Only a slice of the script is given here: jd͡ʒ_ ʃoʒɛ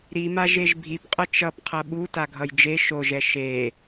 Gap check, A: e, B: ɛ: A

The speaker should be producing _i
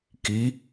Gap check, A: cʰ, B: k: B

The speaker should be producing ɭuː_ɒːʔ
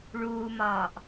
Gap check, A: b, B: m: B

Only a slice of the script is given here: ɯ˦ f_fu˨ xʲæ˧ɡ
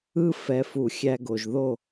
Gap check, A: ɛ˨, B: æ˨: A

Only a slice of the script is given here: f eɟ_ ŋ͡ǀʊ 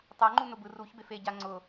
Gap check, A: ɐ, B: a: B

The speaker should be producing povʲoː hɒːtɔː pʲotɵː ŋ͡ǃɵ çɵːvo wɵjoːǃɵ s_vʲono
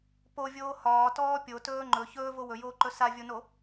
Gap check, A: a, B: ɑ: A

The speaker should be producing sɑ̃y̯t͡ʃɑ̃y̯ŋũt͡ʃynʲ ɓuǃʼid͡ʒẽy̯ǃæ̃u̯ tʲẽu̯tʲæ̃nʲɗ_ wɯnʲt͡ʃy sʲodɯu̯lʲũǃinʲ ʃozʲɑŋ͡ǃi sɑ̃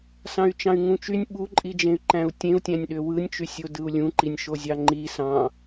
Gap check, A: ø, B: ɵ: A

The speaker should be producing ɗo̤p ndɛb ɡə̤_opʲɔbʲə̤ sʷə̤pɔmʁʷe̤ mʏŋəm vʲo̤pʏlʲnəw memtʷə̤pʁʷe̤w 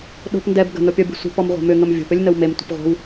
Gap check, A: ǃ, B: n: B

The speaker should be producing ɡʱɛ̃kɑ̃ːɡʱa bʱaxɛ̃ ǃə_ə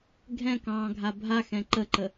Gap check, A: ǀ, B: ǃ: B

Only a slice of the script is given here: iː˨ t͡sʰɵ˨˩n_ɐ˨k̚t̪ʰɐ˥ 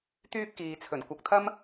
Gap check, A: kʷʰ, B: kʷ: B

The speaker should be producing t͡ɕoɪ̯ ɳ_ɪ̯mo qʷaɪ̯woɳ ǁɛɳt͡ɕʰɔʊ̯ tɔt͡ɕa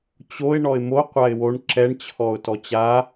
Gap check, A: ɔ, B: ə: A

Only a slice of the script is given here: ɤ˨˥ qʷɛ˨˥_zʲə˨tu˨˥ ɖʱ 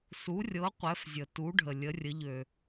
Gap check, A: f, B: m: A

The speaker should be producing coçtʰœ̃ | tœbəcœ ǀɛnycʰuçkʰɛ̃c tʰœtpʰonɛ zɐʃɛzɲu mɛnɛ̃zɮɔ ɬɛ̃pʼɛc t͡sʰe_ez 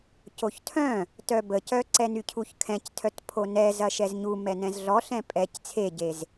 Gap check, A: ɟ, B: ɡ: A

